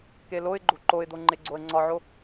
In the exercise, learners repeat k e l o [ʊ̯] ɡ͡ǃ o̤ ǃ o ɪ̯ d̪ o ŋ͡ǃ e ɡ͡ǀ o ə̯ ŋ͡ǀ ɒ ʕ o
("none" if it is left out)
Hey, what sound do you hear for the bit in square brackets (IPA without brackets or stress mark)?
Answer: ɪ̯